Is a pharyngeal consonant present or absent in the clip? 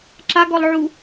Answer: present